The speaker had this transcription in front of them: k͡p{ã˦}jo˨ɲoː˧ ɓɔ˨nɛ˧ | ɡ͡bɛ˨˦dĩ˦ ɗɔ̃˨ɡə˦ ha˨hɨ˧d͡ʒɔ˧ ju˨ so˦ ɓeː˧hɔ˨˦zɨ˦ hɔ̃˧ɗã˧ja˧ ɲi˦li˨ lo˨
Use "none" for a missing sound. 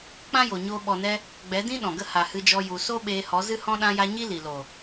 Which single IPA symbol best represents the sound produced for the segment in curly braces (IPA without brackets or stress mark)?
ã˦